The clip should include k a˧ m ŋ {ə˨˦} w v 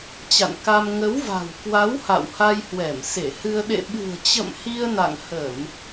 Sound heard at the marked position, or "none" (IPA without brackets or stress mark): ə˨˦